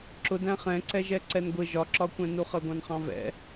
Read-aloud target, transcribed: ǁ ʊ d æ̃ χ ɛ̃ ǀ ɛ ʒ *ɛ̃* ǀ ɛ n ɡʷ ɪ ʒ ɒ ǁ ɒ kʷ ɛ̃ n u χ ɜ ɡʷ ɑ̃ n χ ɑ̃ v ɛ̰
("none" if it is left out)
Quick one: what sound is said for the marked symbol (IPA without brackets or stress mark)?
ɛ